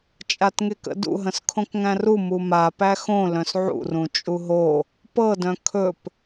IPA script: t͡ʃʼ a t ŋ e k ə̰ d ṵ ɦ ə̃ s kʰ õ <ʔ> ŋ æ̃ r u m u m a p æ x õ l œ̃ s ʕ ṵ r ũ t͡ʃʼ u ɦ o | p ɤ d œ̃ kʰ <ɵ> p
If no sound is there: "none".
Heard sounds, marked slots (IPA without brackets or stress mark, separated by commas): k, ɵ